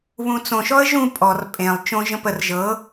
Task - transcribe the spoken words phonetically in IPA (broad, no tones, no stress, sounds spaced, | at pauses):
β ũ t͡s õ ʃ ɔ ə̯ ʒ ũ pʼ ɔ r pʼ ẽ lˠ t͡ʃ õ ʒ ə̃ p ə r ʒ ɤ